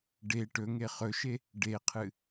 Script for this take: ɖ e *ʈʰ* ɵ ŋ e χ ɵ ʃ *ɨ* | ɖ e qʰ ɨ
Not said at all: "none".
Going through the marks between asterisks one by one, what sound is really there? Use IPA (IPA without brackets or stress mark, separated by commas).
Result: ʈ, e